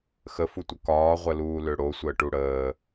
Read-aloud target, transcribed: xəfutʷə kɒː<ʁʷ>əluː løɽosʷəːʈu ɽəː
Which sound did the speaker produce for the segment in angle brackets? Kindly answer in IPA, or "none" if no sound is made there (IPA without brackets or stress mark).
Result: ʁʷ